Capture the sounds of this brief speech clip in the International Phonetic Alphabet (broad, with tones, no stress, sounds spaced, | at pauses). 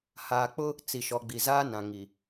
h aː˨ k͡p ʊ˦ | t͡s i˨ ʃ ɔ˨ ɡ͡b i˨ z aː˦ n ã˨ ŋ i˨